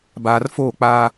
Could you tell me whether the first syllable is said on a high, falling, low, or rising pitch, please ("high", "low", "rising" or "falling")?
low